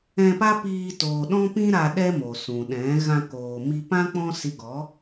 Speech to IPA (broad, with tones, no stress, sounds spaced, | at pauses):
ɛ̃˧ p a˦ p iː˧ t oː˨ ɗ ɔ̃˦ p ĩ˦ ɾ a˧ ɗ ɛ˦ m o˨ s ũ˨ ɗ ɛ̃˨˦ ɣ ã˧ k oː˨ m i˧ p ã˦ k͡p ɔ̃˦ s i˧ ɡ ɔ˨˦